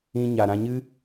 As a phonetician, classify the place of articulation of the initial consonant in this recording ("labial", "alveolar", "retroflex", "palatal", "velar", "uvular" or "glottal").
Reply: palatal